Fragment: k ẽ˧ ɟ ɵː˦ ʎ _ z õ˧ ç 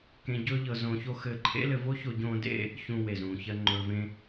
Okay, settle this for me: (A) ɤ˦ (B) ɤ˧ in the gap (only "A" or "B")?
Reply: B